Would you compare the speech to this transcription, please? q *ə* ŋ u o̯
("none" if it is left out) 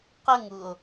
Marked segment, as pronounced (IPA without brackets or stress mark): ə